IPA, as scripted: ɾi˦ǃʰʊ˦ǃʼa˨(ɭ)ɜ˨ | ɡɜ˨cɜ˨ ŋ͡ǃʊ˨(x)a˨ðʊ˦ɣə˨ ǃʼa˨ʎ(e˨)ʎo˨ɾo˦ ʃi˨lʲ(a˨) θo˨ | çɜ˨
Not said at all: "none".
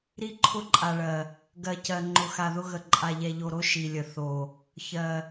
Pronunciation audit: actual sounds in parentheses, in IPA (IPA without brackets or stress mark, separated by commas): ɭ, x, ɛ˨, ə˨